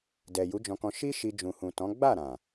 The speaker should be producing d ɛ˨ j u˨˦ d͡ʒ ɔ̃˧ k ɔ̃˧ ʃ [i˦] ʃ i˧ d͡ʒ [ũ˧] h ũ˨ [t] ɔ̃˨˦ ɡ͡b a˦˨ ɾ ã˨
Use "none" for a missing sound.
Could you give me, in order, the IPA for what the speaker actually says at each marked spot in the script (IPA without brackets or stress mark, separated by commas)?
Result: i˦, ũ˨, t